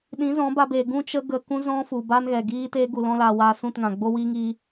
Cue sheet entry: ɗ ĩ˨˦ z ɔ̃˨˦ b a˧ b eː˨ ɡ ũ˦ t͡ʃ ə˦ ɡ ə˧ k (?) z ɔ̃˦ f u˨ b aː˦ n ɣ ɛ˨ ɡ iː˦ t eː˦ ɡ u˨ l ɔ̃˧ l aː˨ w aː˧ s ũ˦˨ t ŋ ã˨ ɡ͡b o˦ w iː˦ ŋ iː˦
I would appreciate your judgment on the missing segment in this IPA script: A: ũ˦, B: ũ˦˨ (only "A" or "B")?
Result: A